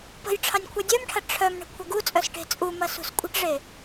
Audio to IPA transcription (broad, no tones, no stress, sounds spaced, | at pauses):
p ə̤ j ʈ͡ʂʰ ɑ nʲ kʷʰ œ dʲ œ m ʈʰ ɐ ʈ͡ʂʰ œ m ɳ ə̤ kʷʰ ɐ ɡ u t͡sʼ œ s ʈ e̤ t͡sʼ u m ɐ s ṳ s kʷʼ ə̤ ʈ ʐ e